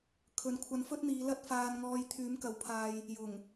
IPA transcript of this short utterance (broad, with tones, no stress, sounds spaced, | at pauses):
kʰ ɵ˨˧ n kʷʰ ɐ˧ n f ɵ˥ t̚ n̪ iː˨˧ l ɐ˥ t̚ f aː˧ n ŋ ɔː˧ j t̪ʰ yː˨˥ m k ɐ˨˧ w pʰ aː˧ j | j ʊ˨˩ ŋ